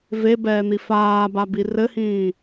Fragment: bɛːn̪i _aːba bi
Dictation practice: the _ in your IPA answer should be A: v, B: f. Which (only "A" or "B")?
B